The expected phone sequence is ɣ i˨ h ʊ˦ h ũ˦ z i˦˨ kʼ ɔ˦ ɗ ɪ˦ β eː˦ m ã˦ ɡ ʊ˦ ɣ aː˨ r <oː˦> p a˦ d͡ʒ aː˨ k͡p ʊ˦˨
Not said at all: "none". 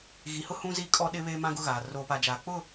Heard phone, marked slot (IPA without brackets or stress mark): oː˦